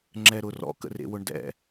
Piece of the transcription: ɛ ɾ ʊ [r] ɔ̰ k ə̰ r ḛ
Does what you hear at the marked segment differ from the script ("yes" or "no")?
no